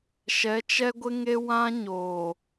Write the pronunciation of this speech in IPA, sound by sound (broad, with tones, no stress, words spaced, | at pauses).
ʃɛ˨˦t͡ʃɛ˦ɡʷɪ˦ŋe˦ wã˦ɲoː˨